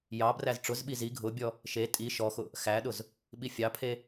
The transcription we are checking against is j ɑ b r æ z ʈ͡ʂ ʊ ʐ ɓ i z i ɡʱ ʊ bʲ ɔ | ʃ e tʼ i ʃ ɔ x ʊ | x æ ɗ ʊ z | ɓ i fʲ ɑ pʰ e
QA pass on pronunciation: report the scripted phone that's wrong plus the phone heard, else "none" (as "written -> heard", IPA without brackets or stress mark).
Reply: ʐ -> z